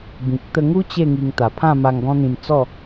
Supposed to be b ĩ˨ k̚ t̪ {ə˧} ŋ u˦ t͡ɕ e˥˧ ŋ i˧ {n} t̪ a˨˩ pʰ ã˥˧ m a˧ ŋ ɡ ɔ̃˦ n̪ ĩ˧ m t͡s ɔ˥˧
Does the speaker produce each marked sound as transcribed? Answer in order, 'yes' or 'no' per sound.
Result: yes, no

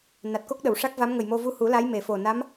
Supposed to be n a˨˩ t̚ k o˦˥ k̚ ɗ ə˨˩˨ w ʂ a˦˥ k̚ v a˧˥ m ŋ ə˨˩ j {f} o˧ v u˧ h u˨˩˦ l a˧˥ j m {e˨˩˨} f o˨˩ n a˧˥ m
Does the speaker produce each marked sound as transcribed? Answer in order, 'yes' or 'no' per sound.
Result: no, yes

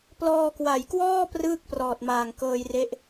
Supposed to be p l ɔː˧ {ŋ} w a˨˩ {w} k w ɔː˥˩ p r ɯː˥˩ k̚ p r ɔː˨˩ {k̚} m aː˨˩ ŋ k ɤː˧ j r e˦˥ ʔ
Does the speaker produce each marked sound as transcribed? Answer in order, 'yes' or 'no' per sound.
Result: no, no, no

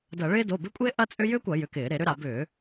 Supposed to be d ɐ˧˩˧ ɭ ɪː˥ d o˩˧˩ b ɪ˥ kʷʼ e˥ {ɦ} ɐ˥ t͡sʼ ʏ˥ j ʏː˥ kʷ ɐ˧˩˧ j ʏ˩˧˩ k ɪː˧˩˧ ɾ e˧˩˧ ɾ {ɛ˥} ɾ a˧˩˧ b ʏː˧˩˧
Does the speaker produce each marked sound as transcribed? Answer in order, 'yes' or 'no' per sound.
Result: no, no

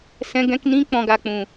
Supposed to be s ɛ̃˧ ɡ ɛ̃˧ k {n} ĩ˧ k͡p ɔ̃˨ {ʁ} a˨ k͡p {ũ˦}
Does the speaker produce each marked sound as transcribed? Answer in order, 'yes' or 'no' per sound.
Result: yes, no, no

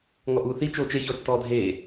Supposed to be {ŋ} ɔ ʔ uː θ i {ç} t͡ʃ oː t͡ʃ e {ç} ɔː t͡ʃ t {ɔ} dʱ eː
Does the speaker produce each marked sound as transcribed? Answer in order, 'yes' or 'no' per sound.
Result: yes, no, yes, no

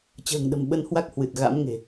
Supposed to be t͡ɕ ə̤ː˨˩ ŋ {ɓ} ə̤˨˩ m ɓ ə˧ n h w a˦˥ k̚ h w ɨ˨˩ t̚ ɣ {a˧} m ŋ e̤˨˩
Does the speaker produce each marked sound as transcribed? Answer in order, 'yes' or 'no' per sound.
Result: no, no

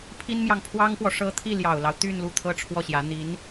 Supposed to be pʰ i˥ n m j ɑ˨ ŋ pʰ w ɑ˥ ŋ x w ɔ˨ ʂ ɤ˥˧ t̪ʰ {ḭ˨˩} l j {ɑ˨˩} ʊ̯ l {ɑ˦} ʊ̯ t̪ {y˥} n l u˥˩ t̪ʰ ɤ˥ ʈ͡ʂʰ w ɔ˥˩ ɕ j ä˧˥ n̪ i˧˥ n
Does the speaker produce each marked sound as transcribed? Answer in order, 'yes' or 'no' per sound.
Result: no, yes, yes, no

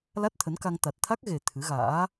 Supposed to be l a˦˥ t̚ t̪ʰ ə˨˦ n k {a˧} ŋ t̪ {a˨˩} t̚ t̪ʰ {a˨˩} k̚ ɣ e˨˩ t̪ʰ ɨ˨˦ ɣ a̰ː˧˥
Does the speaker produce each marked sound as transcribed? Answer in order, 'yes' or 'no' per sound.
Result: yes, yes, no

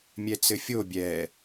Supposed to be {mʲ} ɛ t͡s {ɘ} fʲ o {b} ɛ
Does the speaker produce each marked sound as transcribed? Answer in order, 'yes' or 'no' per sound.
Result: yes, yes, no

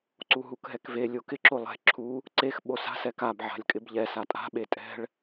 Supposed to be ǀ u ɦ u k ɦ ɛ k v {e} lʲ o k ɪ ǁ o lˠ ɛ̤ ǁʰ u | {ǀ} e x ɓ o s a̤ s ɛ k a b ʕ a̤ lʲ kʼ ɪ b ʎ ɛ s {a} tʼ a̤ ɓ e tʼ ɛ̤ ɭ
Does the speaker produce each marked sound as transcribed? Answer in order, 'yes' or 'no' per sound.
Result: yes, yes, yes

